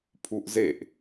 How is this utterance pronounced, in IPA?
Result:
pʰuʔzeʔ

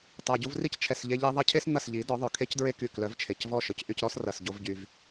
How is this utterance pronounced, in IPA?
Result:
tˤa˨ɟu˧vri˦c t͡ʃʰɛ˨sʎe˧ ʎe˧ðˤɐ˦cʰe˦s n̪ɐ˦˨sʎi˨˦ dɔ˨˦ ðˤœ˨kʰe˦cdɹe˦ ky˨ klœ˨˦vt͡ʃʰe˨cvɔ˦˨ ʃœ˨cʔy˧cɾɔ˦s rɐ˨s ɟo˦vɟy˧v

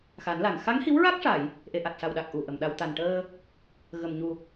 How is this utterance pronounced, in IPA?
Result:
xa˨˩˦nla˨˩ŋ xa˧˥ŋhi˧˥wɹa˦˥k̚ʂa˨˩˨j | ʔe˨˩ʔa˨˩t̚sa˨˩wɗa˨˩k̚ ʔu˨˩ʔə˨˩˨mɗa˧w t̪a˨˩nʈəː˧ | ɣə˨˩mɲu˨˩

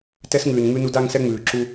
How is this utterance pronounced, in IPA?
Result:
tɛ˦sŋʉː˨nŋ͡mʉ˦nu˦d a˦ŋsɛ˦ŋ͡mʉː˨ ǁu˦

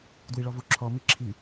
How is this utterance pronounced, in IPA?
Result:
dwiɭɔvu ǁʰɔ miǁʰi

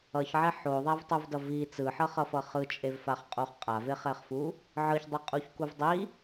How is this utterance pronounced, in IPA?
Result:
ʌçʕɛ ħoðˤavtˤuvdʌ vi t͡sɯħʌχʌfʌ χɯt͡ʃʼevfaχqʼoχ qʼaveχɛχfu | ʕɯçdˤʌqʼuçkuv dˤi

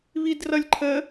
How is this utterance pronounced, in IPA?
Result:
βidrʌlʲǃʰə

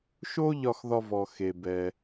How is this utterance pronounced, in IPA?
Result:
ʃo˥ ʎɒ˨xðɒ˨vɔ˩ xe˩ bɛ˩

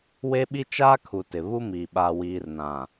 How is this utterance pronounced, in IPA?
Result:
we˦ɓi˦t͡ʃaː˦kʰu˨ tɪ˨ βu˦miː˨ ɓa˨wiː˨rnã˨

